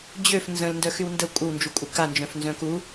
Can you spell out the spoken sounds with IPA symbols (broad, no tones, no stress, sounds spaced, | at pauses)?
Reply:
d͡ʑ ø f n z ə̃ l n d œ x y w n d ə kʷʼ ə w n d͡ʒ u kʷʼ ɪ k a n d͡ʒ œ̃ f n z œ̃ k u